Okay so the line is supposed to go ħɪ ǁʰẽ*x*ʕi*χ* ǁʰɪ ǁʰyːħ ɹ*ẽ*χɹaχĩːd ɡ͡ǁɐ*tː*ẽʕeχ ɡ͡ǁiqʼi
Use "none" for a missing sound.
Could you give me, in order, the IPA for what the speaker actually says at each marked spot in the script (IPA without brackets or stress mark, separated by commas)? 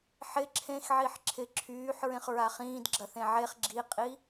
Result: x, ħ, ẽ, θ